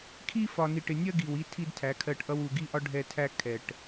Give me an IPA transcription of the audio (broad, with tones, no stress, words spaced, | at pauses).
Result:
kʰi˦fɒ˨ni˨ʈɪ˨ nʲɜ˦ɡi˨w i˦tʰi˦d tʰæ˨˦kʰɜ˦˨ʈʔʌ˦w u˨ɡi˦ʔɒ˦ ɖʱɛ˦ tʰæ˦kʰɛ˨ʈ